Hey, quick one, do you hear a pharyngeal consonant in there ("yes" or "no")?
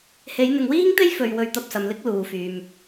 no